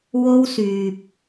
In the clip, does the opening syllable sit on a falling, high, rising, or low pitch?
high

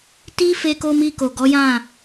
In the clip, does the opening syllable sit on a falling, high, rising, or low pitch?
high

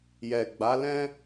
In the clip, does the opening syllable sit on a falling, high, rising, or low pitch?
low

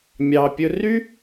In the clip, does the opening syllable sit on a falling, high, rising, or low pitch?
low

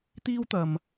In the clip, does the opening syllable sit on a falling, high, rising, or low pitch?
high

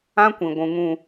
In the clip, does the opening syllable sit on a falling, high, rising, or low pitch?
high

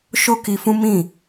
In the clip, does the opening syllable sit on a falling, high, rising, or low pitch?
high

